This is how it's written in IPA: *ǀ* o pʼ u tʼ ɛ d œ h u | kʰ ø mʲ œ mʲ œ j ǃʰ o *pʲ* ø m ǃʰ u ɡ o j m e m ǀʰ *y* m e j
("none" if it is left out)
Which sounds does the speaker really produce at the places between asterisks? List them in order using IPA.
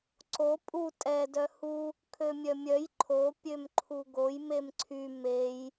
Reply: ǀ, pʲ, y

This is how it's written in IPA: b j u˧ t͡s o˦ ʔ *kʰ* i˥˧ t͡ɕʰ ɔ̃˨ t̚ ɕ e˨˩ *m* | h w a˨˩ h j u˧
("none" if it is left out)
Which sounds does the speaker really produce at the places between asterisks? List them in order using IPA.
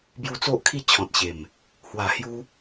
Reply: kʰ, m

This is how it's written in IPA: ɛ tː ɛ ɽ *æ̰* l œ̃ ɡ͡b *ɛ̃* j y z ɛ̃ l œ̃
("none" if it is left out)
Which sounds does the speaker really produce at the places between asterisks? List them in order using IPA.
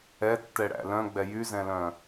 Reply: æ̰, ɛ

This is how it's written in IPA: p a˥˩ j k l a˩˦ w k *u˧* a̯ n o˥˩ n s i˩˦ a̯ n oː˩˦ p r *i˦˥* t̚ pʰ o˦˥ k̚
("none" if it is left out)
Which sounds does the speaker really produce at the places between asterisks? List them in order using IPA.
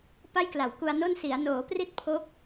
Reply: u˧, i˥˩

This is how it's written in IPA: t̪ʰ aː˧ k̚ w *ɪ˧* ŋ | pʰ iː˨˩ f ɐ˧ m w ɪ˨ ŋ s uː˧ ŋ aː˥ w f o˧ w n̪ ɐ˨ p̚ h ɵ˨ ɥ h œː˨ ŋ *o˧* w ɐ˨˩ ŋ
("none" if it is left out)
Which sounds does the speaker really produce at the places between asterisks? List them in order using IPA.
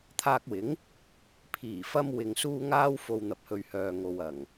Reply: ɪ˨˥, o˨

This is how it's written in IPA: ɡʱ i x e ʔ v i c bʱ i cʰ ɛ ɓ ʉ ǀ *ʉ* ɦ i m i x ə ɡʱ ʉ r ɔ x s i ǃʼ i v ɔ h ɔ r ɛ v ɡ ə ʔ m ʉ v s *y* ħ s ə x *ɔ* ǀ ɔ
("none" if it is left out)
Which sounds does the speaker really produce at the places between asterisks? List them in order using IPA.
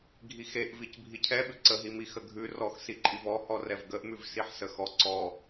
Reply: ə, i, ɔ

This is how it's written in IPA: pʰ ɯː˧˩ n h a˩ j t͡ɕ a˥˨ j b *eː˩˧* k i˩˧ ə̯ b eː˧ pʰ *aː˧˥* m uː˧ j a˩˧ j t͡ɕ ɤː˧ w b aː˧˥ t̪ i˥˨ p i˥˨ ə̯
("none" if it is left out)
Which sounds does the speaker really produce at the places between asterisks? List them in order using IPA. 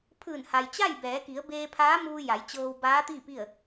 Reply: ɛː˩˧, aː˧˥

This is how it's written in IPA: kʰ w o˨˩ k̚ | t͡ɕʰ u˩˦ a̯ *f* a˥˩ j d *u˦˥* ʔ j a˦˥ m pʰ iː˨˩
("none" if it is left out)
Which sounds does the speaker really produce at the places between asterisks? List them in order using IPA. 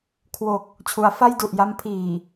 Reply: f, u˨˩

